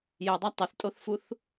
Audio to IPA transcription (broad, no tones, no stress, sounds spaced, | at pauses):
j ɛ dˤ a tˤ ɪ θ tʼ o θ f u θ